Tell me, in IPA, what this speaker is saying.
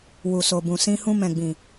w u˨ s o˨ b ũ˨ s ĩ˧ h ũ˧ m ɛ̃˨ ɡ͡b ĩ˨

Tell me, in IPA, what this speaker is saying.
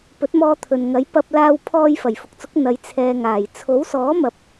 p ɵ˨˥ t̚ m ɔː˧ t̪ʰ ɵ˨ n ŋ ɐ˨˥ j p ɐ˧ p̚ l aː˧ w pʰ ɔː˧ j f ɐ˨˩ j f ʊ˨ k̚ t͡s ʊ˨˥ k̚ n̪ ɐ˨˧ j t͡sʰ ɛː˨ ŋ aː˨˩ j t͡sʰ o˨˥ w s ɔː˨˥ m ɐ˨˥ p̚

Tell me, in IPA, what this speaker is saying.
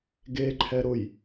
ɡ e ǃʰ ɛ ɾ ʊ j

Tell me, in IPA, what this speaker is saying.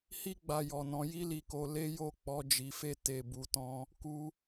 h i˦ ɡ͡b a˧ j ɔ˨ n ɔ̃˨˦ j i˦ l i˧ k o˧ l e˦ j o˦˨ k͡p ɔ˨˦ d͡ʒ i˧ f e˦ t e˦˨ b u˧ t ɔ̃˦ | k u˧

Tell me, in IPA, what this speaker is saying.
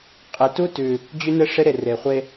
qʼ e˨ t u˦ t ʉ˨ | d͡ʑ ʉ˦ n ɘ˦ ʂ ɪ˦ ɾ e˨ r e˨ χʷ e˦

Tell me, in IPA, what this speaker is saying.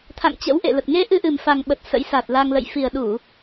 t̪ʰ a̰˧˨ ŋ t͡ɕ ə̰˧˥ w ʔ ḛ˧˨ l ə˨˩ t̚ ŋ e˧ ʔ ɨ˧ ʔ ɨ˨˩ m f a˨˩ ŋ ɓ ə˨˩ t̚ s ə̰˧˥ j s a˨˩ t̚ l a˧ ŋ l ə̰˧˨ j f i˨˩ ə̯ ɗ u˧˩˨

